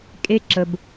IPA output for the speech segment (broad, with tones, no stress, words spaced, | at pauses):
kʼe˥ǁə˧b